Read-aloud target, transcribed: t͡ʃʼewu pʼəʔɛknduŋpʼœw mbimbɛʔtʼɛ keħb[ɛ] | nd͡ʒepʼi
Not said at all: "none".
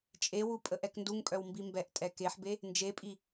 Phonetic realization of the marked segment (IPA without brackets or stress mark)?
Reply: e